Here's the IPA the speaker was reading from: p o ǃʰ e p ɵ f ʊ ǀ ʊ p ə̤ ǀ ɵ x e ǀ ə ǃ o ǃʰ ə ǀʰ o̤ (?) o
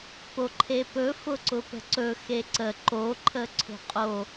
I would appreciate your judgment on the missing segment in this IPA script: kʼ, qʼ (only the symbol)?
qʼ